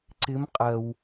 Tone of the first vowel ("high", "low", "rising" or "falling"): rising